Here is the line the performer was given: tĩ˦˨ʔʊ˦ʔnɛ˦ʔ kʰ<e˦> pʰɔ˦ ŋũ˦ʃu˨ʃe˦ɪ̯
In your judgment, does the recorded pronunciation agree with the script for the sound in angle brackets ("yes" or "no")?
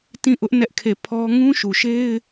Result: no